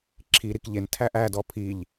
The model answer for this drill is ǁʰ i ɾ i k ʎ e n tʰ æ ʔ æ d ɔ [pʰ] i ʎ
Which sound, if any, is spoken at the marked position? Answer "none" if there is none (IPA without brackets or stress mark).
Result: pʰ